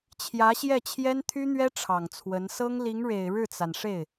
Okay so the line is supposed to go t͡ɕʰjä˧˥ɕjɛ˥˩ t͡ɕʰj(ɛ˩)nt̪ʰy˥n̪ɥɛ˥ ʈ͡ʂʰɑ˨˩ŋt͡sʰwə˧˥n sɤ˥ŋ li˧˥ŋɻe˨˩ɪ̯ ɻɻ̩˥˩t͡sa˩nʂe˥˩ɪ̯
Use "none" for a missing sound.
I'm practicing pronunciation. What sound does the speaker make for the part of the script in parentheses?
ɛ˥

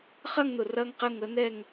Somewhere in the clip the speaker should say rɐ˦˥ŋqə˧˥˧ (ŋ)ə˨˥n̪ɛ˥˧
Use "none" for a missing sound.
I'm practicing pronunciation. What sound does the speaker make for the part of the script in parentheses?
ŋ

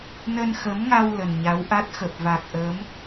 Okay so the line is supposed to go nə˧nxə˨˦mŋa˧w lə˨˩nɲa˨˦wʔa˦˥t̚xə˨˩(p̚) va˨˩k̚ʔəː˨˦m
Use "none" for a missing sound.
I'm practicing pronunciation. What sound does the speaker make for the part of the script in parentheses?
p̚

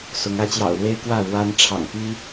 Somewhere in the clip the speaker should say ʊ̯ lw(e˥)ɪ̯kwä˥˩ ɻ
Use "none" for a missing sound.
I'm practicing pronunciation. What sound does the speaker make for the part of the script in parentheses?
e˥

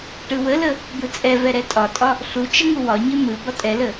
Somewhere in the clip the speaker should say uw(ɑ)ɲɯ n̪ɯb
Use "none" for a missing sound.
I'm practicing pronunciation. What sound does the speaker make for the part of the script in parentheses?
ɒ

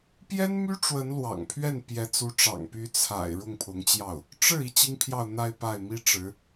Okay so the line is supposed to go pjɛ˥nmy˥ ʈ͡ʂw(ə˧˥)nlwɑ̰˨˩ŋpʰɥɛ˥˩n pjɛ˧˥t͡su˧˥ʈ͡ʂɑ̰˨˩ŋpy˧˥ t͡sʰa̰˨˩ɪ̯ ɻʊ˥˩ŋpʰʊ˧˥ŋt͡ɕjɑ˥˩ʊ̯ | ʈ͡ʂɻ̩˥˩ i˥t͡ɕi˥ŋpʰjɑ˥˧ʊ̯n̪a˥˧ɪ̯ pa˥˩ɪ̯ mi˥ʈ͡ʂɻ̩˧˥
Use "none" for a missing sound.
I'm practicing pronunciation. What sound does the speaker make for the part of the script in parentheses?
ə˧˥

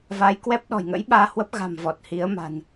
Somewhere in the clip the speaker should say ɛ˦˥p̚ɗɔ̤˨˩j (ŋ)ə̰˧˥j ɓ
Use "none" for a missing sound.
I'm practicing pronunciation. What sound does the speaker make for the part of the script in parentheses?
ŋ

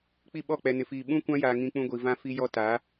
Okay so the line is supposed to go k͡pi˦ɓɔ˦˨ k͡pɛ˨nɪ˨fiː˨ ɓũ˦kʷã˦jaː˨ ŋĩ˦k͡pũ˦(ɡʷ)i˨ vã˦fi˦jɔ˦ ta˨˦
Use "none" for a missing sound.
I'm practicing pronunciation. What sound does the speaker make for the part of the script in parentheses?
ɡʷ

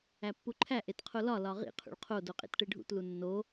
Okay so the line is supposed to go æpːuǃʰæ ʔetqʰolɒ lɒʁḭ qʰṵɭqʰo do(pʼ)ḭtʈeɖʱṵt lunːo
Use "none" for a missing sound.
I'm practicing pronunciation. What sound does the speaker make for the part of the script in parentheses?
qʼ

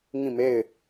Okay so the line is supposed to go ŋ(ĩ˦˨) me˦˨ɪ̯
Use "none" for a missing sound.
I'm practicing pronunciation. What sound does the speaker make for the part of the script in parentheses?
ĩ˦˨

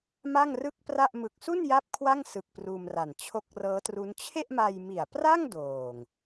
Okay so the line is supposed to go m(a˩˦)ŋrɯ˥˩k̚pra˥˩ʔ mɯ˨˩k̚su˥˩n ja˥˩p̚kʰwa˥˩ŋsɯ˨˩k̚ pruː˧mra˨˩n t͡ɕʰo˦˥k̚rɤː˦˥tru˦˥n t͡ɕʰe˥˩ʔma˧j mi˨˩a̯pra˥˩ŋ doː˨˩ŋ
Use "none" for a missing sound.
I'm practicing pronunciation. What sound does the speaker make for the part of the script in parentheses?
a˥˩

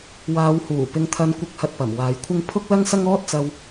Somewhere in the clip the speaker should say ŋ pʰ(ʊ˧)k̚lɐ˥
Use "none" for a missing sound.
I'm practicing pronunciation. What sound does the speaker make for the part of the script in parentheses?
ʊ˥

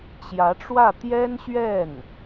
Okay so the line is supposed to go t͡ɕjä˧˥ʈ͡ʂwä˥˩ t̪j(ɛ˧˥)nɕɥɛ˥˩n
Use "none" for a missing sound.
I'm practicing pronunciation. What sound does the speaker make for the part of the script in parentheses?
ɛ˥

